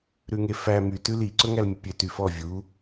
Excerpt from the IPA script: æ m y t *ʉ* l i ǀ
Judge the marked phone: correct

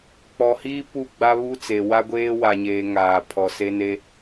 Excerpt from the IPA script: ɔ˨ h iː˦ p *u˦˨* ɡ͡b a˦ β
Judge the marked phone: correct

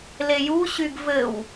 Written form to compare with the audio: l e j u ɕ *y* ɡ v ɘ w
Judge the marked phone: correct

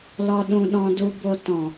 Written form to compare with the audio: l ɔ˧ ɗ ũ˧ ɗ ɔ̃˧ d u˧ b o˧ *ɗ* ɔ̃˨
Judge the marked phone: incorrect: t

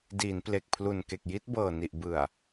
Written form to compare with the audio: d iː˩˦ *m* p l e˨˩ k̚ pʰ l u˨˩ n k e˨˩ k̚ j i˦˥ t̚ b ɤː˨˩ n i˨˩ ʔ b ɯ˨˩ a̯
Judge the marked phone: incorrect: n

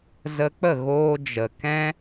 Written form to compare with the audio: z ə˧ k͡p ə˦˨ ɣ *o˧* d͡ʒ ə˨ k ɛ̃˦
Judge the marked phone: incorrect: oː˧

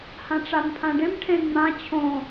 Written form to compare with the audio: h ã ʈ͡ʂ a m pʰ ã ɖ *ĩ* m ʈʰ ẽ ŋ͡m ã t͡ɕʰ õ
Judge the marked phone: incorrect: ẽ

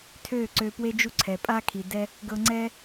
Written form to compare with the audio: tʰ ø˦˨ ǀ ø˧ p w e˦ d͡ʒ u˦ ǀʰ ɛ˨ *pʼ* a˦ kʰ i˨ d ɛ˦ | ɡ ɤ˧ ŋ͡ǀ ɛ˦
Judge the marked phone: correct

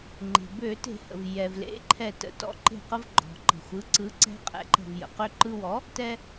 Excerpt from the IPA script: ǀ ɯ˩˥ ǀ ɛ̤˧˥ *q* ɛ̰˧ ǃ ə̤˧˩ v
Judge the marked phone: incorrect: qʼ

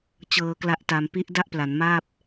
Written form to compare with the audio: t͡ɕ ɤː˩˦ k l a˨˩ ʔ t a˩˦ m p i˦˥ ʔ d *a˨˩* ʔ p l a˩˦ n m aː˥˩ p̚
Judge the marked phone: incorrect: a˥˩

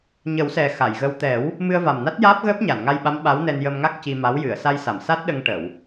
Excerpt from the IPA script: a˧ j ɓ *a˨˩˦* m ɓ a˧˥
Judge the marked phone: incorrect: a˧˥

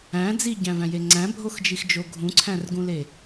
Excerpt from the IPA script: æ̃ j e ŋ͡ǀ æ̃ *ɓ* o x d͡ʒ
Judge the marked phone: incorrect: bʱ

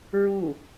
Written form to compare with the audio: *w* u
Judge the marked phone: incorrect: ɹ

